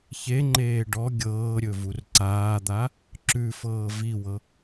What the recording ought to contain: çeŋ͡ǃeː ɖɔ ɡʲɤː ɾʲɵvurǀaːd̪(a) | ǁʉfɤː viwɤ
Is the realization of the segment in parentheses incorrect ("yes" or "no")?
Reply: no